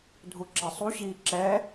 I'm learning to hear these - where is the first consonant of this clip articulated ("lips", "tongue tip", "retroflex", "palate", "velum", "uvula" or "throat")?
tongue tip